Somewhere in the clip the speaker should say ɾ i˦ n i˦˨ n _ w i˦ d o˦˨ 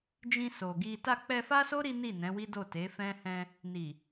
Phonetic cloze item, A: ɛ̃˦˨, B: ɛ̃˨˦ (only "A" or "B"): B